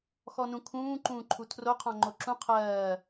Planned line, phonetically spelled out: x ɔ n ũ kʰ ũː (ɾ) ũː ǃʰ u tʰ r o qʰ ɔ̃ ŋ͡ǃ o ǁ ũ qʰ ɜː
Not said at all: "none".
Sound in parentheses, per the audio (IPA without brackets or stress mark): ǃ